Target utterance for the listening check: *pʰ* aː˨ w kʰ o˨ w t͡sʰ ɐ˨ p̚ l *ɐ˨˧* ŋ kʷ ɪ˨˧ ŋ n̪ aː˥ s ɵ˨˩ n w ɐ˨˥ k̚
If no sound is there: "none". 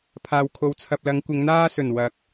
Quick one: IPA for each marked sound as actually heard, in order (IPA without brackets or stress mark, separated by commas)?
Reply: pʰ, ɐ˨˧